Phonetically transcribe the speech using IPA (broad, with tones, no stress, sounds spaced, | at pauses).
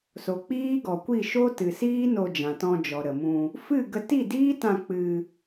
s o˨ k͡p iː˦ ɡ ɔ˨ kʷ i˦˨ ʃ o˦ t ɨ˨ s iː˦ n o˧ d͡ʒ ã˨ t ɔ̃˧ d͡ʒ ɔ˨ ɾ ə˨ m ũ˧ | f ɨ˦˨ ɡ ə˧ t i˦˨ d iː˦ t ã˧ k͡p ɨ˧